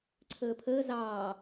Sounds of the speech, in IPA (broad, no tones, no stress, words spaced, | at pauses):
ǀʰəːpʰəː zɑː